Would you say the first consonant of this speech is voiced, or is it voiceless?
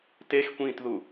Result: voiceless